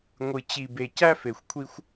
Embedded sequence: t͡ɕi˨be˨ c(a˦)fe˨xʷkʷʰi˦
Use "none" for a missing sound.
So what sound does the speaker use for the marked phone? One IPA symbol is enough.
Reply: æ˦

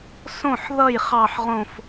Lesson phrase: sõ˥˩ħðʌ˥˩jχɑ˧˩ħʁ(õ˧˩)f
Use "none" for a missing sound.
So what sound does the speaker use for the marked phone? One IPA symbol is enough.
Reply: õ˧˩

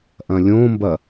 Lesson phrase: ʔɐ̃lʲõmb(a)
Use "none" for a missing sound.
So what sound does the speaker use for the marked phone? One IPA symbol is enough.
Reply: ɐ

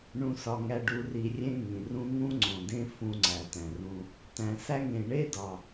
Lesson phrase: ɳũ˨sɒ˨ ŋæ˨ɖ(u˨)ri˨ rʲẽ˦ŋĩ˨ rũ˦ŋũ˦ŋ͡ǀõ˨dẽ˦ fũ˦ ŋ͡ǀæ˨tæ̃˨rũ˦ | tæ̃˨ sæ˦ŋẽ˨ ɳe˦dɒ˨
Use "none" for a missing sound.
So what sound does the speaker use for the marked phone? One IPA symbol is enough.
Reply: u˨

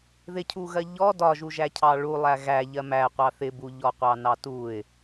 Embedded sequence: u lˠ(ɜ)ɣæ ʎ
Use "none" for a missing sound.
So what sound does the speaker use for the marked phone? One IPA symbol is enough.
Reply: æ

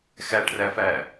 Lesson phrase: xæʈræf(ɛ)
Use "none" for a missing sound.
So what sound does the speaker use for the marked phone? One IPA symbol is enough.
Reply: æ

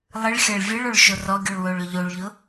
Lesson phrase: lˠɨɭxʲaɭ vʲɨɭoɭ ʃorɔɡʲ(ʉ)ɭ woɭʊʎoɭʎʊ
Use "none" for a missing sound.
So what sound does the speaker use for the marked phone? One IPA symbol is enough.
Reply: ʉ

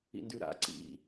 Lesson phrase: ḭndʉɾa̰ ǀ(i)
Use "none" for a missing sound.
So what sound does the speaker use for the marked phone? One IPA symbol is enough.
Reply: ḭ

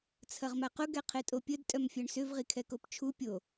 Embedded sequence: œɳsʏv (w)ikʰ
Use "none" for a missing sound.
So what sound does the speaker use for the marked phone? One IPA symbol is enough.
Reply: ʁ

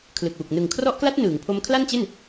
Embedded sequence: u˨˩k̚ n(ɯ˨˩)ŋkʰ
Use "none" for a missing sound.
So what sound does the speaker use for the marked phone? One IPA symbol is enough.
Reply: ɯ˨˩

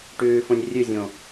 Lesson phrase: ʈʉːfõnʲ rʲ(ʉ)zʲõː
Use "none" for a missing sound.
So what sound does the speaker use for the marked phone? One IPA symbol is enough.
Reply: ʉ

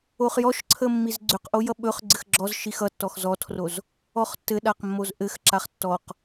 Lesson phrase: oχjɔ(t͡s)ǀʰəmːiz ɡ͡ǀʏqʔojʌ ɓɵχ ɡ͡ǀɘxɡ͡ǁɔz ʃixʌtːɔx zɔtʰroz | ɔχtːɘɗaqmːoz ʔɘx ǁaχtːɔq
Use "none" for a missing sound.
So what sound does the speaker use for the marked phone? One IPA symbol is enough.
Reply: ʃ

